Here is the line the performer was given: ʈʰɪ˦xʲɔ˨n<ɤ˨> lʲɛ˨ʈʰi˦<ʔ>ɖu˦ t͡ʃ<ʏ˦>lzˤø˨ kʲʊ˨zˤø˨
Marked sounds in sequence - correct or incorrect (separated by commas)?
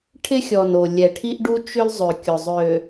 incorrect, correct, correct